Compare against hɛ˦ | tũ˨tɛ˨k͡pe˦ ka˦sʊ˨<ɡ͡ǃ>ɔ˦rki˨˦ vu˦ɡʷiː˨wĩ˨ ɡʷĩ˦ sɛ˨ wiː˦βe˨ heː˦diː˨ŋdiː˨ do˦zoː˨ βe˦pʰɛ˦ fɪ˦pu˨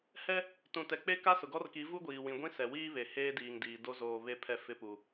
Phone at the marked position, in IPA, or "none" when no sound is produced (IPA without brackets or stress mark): ɡ